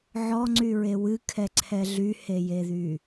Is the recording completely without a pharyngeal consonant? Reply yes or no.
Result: no